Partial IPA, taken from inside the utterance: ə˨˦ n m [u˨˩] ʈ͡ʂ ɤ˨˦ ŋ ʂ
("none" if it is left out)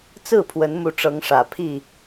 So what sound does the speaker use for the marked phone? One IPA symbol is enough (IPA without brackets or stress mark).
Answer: u˨˦